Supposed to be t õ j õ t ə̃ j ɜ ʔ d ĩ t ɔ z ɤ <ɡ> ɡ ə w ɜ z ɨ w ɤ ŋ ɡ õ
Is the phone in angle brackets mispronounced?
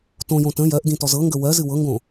yes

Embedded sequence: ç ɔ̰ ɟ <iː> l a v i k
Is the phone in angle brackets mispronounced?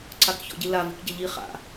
yes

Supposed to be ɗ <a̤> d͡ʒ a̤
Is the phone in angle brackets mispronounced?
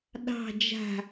yes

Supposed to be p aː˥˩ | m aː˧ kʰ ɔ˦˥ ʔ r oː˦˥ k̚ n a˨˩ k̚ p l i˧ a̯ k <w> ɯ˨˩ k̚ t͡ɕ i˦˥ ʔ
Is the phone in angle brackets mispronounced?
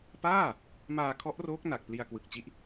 no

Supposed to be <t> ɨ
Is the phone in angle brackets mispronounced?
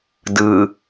yes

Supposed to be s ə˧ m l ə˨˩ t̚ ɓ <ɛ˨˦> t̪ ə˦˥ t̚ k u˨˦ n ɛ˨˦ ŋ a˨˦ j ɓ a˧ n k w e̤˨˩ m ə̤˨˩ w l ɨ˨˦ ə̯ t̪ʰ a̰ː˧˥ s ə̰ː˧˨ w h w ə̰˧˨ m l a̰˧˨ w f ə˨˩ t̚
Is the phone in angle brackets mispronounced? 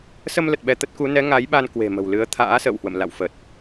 yes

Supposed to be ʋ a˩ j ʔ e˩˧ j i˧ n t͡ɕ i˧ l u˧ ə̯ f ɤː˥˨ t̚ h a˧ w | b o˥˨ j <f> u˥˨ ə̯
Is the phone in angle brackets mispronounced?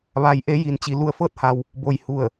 yes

